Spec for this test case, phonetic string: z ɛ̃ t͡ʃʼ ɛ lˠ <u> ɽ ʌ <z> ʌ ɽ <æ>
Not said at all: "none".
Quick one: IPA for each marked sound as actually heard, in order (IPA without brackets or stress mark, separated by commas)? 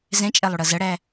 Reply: u, z, æ